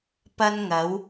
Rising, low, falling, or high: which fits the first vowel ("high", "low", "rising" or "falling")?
high